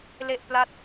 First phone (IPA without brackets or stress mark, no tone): l